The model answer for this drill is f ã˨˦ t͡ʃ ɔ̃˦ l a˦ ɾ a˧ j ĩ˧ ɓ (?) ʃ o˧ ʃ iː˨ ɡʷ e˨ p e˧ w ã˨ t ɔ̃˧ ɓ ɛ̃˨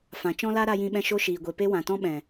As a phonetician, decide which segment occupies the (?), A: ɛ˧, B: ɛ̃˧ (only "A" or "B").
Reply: B